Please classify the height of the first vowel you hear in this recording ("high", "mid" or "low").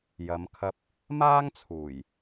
low